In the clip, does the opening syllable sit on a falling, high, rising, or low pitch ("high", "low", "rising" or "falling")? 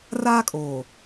high